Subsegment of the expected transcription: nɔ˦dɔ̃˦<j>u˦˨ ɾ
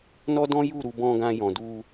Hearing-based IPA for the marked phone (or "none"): j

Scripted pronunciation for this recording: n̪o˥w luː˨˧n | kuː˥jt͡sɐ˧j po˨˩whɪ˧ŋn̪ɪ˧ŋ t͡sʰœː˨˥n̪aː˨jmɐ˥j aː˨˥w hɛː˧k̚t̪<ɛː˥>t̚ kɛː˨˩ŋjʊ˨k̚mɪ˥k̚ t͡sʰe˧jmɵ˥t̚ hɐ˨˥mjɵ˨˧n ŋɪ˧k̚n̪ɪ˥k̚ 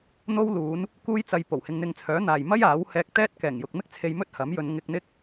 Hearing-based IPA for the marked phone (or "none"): ɛː˥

